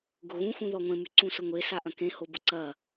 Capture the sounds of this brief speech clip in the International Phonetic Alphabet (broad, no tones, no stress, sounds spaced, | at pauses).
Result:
ɡ ʊ ɣ ũ x ũ ð ɔ ŋʷ ẽ m y ǀ ũ s ʊ ŋʷ e s a ʔ ɐ̃ k ẽ h o b ʊ ǀ ɐ